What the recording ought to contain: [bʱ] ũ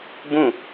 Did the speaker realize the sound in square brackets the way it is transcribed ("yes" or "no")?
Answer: no